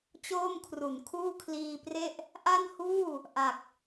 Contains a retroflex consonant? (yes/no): no